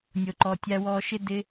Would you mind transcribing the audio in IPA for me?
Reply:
nʲ o˨ ǃ ɔ˨ tʲ a˧ w ɔ˧ ʃ ɪ˦ d ɪ˧

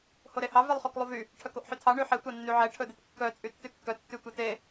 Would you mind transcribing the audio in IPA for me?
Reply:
h o ɾ e h ɑ v e lˠ χ o k lˠ u v y | ʈʰ œ k o ʔ ħ y tʰ ɑ ɳ y ħ e tʷ ɑ nː y ʕ ɛ ʈʰ ɵ d e t kː œ t͡sʼ y tː y kː œ tː y tʷ ɑ t e

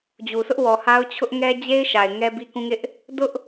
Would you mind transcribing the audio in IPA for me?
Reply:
d͡ʑ u˨ sʰ ʊ˦ ʔ w ɔ˨ h a˦ ʊ̯ t͡ɕʰ ʊ˦ ʔ ŋ ɛ˦ d͡ʑ e˦ ɪ̯ ʃ a˨ ɪ̯ ŋ ɛ˦ b i˦ k ũ˦ ŋ ɪ˦ ʔ | d ʊ˦ ʔ

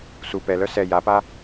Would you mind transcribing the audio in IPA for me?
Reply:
s u p ɛ l œ s ɛ j a p a

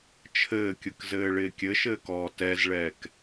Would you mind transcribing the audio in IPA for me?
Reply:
t͡ʃʰ ɘː kʲ ɯ k z ɘː ɭ ɪː kʲ ɘ ʃ ɘː k ɔː t ɛ z ɭ ɛː k

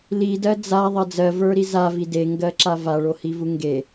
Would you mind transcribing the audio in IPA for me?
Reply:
l i d ɜ d͡z a ðˤ ɜ d͡z ɜ v ə˞ ɾ i z a v i d e ŋ ɡ ɜ ǁ a v a ɭ o h i v u ŋ ɡ e

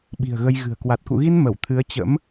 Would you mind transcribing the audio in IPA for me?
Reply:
ɓ i̤˨˩ ə̯ ɣ ə˧ j ɣ ɨ̤˨˩ ə̯ k w a˨˩ t̚ k ṵ˧˨ ɣ i˧ n m ə˧˩ w t̪ʰ ɨ˨˦ ə̯ t͡ɕ ə̰˧˥ m

